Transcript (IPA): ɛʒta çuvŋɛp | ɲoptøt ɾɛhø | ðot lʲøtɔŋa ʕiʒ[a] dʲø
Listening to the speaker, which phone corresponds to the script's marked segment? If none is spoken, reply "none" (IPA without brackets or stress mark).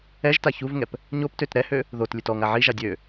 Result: a